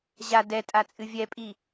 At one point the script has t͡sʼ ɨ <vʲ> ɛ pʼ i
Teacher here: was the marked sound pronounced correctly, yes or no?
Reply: yes